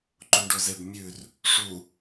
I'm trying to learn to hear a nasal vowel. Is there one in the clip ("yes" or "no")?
no